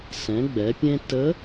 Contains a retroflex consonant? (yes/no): no